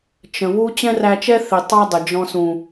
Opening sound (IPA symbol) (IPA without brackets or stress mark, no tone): t͡ʃ